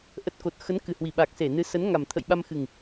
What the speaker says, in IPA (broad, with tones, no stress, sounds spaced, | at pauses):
ʔ ə˨˩ t̚ k o˨˩ t̚ x ə˨˦ n k ɨ˨˩ h w i˧˩ ɓ a˨˩ k̚ s e˧˩ n ɨ˨˦ s ə˨˦ n ŋ a˨˩ m t̪ʰ ə̰˧˨ j ɓ a˧ m x ɨ˨˩ ŋ